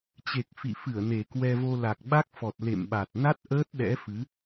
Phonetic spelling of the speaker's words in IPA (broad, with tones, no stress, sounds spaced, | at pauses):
t͡ɕ e˨˩ k̚ f ḭ˧˨ f ɨ˧˩ ə̯ n e˨˩ k w ɛ˧ v o˧ l a˨˩ k̚ ɓ a˦˥ k̚ f ɔ˨˩ t̚ l ḛ˧˨ m ɓ a˨˩ t̚ n a˦˥ t̚ ʔ əː˦˥ t̚ ɗ ɛ̰˧˥ f ɨ˨˦